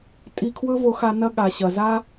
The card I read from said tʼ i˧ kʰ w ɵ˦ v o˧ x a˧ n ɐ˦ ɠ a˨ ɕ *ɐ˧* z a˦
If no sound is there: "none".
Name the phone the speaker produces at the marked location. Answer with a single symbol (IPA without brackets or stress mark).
ɐ˨